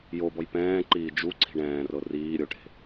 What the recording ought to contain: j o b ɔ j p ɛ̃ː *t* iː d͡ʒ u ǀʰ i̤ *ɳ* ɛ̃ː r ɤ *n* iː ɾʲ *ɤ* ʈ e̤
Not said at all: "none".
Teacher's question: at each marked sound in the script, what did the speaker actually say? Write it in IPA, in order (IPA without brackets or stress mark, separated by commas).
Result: ǃ, ɳ, r, o